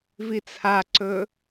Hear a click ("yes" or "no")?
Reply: yes